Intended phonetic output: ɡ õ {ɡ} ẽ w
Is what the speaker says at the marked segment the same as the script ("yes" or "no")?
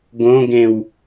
yes